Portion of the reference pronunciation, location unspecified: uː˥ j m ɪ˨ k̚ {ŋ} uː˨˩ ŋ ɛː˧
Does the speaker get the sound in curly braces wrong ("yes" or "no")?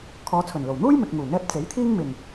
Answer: no